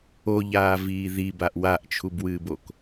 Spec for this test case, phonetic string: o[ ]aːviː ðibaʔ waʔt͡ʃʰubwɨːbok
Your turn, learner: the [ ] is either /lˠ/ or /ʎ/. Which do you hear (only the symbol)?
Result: ʎ